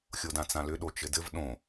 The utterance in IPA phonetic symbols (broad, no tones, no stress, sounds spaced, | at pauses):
xʲ o d ã t͡s ã l ʏ ɗ o t͡ʃ ɘ d ɘ v ɗ õ